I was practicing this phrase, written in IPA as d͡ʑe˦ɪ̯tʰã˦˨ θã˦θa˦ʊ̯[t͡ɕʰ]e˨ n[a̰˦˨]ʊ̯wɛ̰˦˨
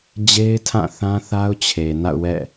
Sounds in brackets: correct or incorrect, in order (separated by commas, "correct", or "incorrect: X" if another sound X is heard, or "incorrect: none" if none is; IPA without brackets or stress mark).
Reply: correct, correct